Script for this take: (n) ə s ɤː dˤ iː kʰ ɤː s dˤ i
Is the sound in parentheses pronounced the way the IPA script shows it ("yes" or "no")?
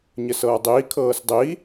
no